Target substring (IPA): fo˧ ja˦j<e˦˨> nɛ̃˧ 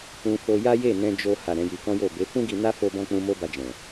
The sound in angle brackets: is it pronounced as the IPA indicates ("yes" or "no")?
yes